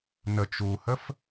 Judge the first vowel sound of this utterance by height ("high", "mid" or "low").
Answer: mid